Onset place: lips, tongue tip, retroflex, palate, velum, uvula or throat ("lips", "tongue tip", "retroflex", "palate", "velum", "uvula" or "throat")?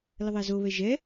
tongue tip